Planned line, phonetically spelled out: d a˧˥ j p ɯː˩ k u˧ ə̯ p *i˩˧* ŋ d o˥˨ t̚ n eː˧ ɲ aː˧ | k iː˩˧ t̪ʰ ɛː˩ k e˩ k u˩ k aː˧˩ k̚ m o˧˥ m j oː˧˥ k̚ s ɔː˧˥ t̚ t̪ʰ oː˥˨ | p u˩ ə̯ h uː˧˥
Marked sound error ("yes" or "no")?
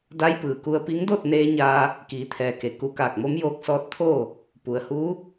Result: yes